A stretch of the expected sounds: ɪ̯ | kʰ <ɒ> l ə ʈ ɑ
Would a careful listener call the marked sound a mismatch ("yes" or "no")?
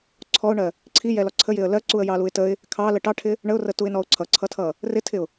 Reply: yes